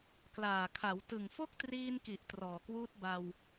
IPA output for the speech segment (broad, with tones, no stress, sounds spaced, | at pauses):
k l aː˨˩ kʰ a˩˦ w t ɯ˨˩ ŋ f o˥˩ k̚ t r iː˧ n k i˨˩ ʔ t r ɔː˨˩ k w uː˦˥ t̚ b a˧ w